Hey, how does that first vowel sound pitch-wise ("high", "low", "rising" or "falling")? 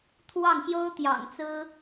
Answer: falling